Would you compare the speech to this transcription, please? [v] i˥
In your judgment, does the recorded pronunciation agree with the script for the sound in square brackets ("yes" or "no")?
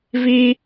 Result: yes